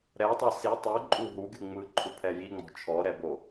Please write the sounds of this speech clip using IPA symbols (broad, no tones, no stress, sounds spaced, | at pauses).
ɾ ɛ tˤ ɤ s i tˤ ɯ ǃʼ u ɦ u ɡʲ u ŋ͡m ɯ ǃʰ u pʰ ɛ j i ŋ͡m ɔ̤ t͡ʃʰ ɔ ɾ ɛ b o